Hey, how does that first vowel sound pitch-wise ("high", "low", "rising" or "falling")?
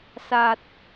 low